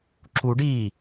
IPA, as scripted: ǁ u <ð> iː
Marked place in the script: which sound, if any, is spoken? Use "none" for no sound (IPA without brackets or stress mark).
ɖ